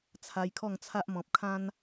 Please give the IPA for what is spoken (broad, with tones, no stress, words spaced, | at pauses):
t͡sʰa˧jkʰɔ˥˧ŋt͡sʰa˦ʔ mɔ̃˨p̚kʰã˦n